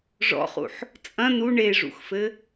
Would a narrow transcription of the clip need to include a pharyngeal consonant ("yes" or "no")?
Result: yes